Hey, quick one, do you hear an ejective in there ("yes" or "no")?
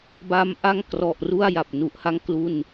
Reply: no